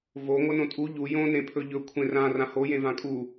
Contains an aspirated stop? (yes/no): yes